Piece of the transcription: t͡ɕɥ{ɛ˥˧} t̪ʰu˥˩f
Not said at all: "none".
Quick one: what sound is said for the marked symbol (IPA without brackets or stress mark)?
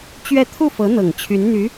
ɛ˥˧